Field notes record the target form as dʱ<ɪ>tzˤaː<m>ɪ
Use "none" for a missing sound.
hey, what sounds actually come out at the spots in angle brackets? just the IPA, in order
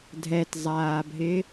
ɛ, bʱ

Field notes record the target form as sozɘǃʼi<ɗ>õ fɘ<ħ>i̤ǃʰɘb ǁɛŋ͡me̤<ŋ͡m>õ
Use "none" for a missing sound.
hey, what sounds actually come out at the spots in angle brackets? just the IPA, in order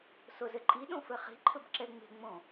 ɗ, χ, ŋ͡m

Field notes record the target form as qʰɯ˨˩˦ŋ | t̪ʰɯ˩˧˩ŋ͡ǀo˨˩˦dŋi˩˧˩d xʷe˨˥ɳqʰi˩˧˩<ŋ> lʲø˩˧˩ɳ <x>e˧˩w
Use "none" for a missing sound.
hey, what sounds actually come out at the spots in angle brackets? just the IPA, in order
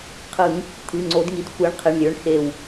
ɳ, x

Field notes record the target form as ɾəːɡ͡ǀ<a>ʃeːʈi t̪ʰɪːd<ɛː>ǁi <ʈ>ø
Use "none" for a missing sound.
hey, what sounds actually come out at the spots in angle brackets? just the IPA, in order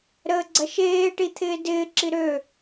ɐ, ɪː, ɾ

